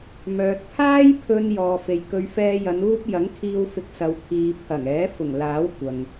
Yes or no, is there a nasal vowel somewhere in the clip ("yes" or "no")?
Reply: no